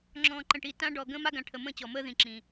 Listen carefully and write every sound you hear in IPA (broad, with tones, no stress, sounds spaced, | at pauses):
ŋ͡ǁ ɔ̃ː˨ ǃ ə̃˨ ʈ i˨ t ã˦ ɖ ɔ˨ ɡ ə̃ː˦ m a˦ ɡ ã˨ ʈʰ ə˨ m ə̃ː˦˨ t͡ɕ ɔ˨ m əː˦ ð ĩ˨ ǁ ĩ˨